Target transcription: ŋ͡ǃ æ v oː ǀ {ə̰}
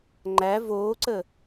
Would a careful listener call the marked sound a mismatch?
yes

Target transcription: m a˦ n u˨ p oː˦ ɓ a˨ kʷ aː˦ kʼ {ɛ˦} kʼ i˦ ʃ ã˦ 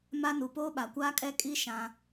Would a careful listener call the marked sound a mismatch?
no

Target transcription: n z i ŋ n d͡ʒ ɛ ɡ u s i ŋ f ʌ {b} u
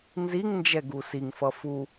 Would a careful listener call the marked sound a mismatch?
yes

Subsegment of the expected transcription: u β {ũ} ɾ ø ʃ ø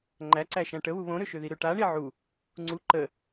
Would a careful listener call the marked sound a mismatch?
yes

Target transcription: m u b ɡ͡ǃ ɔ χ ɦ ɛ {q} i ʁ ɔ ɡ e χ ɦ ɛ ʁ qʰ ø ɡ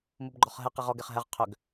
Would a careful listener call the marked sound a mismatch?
no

